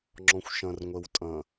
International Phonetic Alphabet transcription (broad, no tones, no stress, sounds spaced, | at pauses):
ŋ͡ǁ ɔ̃ xʷ ʃ ɐ̃ r ŋʷ ɛ w tʼ ɐ̃